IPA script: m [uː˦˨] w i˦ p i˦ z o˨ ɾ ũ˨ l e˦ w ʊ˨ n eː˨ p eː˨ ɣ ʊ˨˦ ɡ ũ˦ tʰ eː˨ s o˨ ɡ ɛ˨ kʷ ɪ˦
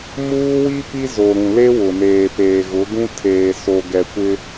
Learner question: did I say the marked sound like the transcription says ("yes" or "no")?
no